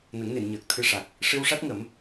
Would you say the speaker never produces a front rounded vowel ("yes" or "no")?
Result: yes